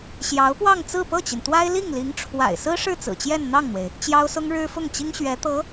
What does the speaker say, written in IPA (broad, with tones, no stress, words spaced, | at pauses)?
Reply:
ɕjɑ˧˥ʊ̯pwɑ˥˧ŋ t͡sɹ̩˥˧pɤ˥˩t͡ɕi˩nt̪wa˥ɪ̯ li˥˩ŋli˧˥ŋʈ͡ʂʰwa̰˨˩ɪ̯ sɹ̩˥ʂɻ̩˥˩ t͡sɹ̩˨˩t͡ɕjɛ˥˧nn̪ɑ˥˩ŋn̪we˩ɪ̯ | t͡ɕjɑ˥ʊ̯sʊ˥ŋɻɻ̩˥fʊ˥˩ŋ t͡ɕi˥ŋɕɥɛ˧˥t̪ɤ˧˥